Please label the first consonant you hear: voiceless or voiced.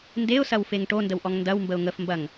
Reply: voiced